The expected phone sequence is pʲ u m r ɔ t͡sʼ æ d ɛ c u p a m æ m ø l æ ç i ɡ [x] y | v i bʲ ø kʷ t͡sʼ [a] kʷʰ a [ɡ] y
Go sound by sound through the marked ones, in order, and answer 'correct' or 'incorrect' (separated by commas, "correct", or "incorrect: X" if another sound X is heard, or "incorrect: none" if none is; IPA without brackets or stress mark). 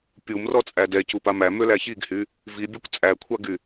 incorrect: h, incorrect: æ, correct